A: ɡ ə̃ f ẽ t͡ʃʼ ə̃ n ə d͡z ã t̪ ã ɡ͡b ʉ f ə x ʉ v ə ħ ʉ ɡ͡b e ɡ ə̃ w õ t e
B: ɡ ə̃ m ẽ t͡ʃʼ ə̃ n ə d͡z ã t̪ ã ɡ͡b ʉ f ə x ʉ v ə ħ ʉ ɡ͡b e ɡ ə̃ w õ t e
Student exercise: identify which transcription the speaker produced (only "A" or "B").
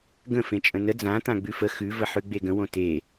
A